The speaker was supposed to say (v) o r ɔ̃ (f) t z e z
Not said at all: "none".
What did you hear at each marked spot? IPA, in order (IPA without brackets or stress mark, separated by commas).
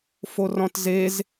f, none